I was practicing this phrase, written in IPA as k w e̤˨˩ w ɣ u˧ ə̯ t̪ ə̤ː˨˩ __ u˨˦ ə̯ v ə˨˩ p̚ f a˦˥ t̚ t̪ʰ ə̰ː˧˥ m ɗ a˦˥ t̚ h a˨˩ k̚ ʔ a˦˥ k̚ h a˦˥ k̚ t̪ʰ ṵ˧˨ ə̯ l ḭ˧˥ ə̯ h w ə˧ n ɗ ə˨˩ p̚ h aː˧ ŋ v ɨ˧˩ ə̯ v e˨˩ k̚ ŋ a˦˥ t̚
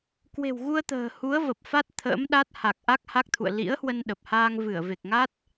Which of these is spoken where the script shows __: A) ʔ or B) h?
B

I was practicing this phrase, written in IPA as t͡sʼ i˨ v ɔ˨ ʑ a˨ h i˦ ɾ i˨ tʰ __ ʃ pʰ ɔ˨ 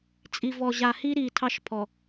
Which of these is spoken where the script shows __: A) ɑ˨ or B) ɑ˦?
B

